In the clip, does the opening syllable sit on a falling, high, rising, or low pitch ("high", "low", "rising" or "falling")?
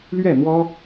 falling